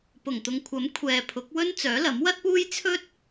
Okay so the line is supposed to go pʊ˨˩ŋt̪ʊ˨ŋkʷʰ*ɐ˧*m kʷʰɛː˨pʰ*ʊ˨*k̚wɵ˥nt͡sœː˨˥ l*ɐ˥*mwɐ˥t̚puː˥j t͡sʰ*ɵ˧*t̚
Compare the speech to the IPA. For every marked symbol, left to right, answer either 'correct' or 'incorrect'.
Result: incorrect, incorrect, incorrect, incorrect

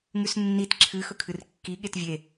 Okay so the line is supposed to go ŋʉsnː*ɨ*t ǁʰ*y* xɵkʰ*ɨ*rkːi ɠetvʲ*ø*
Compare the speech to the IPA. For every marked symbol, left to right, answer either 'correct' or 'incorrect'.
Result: incorrect, incorrect, correct, incorrect

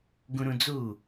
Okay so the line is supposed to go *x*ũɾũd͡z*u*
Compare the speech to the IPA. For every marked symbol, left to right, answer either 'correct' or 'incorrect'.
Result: incorrect, correct

